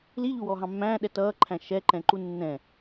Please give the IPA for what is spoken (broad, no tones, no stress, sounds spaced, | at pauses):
l i ʎ u w ɔ ɦ ɑ̃ mː æ̃ː ɗ ɛ t ʌː ǃʰ æ̃ ʃ ɛ ǃ ɛ̃ ǃ u nː ɛ̃